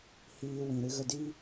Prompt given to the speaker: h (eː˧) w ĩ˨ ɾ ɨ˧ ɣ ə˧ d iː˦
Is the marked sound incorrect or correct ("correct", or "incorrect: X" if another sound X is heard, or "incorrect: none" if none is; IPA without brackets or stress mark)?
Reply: incorrect: iː˧